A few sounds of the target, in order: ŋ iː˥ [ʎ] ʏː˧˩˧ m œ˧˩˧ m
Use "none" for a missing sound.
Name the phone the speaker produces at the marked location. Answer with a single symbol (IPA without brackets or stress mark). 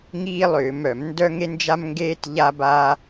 lˠ